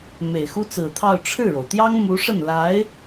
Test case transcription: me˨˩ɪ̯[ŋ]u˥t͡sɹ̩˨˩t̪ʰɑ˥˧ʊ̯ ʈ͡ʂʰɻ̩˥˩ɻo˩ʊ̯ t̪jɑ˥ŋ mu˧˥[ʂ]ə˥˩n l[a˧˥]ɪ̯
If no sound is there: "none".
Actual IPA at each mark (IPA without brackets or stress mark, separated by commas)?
x, ʂ, a˧˥